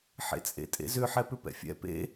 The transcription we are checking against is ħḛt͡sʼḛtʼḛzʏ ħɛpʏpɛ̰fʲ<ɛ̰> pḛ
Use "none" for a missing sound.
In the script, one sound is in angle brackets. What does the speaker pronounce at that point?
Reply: ɛ̰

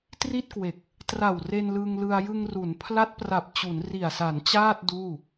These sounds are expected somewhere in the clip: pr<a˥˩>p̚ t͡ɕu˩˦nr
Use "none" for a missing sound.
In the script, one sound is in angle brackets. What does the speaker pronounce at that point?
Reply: a˨˩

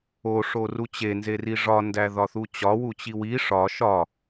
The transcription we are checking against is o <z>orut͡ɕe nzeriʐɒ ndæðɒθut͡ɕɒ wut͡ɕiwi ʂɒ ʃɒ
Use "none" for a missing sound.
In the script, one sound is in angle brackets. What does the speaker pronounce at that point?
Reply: ʂ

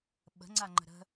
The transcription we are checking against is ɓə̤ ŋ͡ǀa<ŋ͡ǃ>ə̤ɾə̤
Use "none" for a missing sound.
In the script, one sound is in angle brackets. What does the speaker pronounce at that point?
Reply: ŋ͡ǃ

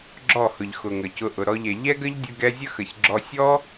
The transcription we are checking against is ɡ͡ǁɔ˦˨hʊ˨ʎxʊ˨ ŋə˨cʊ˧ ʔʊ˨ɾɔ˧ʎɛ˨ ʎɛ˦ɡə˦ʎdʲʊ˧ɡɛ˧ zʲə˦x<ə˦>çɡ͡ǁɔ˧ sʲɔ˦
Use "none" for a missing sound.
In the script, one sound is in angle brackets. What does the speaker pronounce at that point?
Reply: ə˨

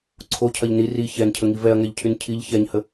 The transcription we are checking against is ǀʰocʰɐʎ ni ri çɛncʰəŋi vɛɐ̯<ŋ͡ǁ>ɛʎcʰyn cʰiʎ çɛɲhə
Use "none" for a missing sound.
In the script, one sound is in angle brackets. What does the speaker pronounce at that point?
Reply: ŋ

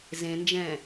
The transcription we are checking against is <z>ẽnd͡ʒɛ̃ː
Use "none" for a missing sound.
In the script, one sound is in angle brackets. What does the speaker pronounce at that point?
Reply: z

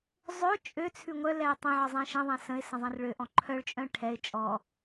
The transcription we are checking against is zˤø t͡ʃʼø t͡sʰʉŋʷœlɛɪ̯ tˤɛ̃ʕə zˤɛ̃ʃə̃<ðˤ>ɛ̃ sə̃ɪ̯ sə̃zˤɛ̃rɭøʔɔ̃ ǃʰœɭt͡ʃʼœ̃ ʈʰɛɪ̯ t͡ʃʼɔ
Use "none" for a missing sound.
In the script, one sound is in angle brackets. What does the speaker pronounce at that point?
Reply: ðˤ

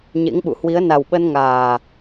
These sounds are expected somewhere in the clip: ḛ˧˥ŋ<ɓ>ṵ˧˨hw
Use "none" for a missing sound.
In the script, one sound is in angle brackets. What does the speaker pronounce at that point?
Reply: ɓ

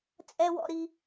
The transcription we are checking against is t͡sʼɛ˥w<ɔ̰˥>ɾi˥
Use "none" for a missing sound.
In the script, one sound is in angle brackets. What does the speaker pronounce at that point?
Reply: ɔ̰˥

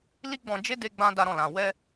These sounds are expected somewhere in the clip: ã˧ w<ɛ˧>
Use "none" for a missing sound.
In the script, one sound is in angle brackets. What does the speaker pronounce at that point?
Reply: ɛ˦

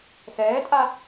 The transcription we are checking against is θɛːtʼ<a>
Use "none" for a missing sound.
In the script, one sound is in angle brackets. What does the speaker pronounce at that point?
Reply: a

